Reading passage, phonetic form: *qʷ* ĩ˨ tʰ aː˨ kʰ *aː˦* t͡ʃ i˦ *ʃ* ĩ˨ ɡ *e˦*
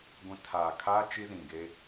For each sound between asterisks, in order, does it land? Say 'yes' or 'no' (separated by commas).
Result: no, yes, no, yes